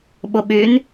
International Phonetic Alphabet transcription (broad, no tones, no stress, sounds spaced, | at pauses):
ɓ ʊ ɓ y n